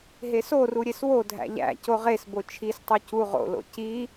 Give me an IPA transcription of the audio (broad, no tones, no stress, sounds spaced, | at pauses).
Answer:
ɦ e s o r u ɾʲ e s w o dʱ æ̰ ʎ æ̰ c o ʁ e s b o t͡ʃʰ i s tˤ u c u ʁ o̰ l o̰ c i